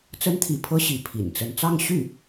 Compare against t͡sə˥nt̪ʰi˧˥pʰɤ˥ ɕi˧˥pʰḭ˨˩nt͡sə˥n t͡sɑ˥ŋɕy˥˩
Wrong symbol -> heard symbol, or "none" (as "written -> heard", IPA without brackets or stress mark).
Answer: ɑ˥ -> ɑ˥˧